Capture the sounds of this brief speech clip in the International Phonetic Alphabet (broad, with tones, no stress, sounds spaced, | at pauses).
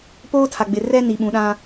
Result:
p oː˦ tʰ a˨ ɡ͡b ɪ˨ r ɛ˦ n i˨ ɓ ũ˨˦ ɗ ã˦